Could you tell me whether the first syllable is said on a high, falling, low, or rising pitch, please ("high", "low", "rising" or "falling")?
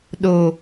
low